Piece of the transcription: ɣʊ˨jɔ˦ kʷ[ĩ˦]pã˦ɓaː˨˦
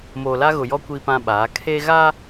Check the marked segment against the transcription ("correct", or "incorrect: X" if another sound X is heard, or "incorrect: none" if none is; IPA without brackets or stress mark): incorrect: i˦